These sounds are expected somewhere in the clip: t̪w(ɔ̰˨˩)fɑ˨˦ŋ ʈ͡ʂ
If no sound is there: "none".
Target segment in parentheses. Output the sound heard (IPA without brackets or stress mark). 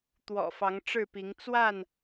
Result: ɔ̰˨˩